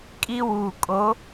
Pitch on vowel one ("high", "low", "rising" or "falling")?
high